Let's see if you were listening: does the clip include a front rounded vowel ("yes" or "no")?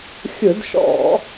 no